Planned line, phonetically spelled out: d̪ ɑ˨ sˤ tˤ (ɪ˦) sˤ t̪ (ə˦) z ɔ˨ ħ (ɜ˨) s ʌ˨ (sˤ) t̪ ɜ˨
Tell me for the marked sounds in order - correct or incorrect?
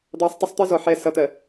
correct, correct, incorrect: ɛ˨, incorrect: none

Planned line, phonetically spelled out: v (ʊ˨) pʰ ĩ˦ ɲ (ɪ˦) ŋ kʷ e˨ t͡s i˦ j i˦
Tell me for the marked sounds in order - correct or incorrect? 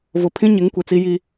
correct, incorrect: ɪ˨˦

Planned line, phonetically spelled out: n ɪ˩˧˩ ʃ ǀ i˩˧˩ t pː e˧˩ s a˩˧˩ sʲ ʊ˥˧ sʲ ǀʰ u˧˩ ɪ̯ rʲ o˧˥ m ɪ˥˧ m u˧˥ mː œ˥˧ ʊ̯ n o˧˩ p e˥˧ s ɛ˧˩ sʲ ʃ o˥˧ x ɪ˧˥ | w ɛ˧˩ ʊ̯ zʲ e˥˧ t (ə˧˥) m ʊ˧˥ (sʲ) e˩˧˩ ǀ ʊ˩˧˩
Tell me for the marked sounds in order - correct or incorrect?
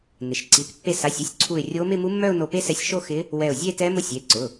incorrect: ɛ˧˥, correct

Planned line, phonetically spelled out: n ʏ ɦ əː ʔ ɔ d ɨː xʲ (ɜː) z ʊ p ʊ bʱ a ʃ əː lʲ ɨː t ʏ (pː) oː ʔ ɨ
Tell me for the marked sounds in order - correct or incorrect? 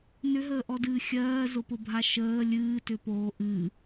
correct, incorrect: p

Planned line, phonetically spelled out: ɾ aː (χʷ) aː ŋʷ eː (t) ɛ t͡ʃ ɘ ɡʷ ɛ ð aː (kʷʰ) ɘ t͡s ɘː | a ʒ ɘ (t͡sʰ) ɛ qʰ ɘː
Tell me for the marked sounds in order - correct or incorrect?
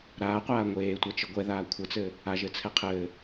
incorrect: qʷ, incorrect: tʷ, correct, correct

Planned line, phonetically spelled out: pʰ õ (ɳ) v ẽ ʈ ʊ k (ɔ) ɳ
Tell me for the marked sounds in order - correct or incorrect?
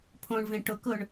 correct, incorrect: ʊ

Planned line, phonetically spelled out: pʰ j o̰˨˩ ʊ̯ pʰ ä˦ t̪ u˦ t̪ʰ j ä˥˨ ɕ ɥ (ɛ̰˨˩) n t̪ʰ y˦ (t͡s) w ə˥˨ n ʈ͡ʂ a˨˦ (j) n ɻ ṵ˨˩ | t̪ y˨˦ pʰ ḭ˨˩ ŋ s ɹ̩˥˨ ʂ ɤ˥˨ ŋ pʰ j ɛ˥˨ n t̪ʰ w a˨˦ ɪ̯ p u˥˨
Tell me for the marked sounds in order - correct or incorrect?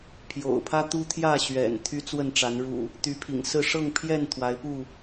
correct, correct, incorrect: none

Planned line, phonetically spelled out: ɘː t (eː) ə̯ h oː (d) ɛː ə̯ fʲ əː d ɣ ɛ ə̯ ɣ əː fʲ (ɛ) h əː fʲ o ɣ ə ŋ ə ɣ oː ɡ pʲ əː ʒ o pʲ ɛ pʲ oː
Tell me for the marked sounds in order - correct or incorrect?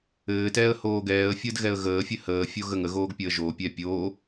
incorrect: ɛː, incorrect: ɡ, incorrect: ɘ

